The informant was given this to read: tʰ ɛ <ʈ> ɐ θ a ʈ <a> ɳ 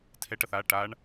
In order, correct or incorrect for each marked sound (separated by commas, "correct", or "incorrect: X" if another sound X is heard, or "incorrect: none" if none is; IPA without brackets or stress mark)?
correct, correct